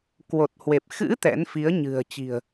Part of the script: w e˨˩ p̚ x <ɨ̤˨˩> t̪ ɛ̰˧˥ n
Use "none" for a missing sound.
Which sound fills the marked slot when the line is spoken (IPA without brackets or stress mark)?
ɨ̰˧˥